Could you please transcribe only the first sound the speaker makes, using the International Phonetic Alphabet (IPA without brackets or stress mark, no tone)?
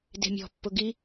d